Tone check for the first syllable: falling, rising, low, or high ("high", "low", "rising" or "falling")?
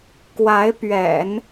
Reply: rising